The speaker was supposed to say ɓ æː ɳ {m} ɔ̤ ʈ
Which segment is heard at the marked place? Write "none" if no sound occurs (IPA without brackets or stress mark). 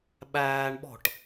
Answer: ɓ